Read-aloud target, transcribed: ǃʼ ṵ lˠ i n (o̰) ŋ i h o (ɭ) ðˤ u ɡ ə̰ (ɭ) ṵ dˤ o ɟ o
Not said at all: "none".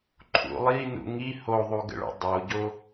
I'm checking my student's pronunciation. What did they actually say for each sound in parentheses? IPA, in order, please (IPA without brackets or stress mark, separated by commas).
ṵ, none, ɭ